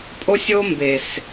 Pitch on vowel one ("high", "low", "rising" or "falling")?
high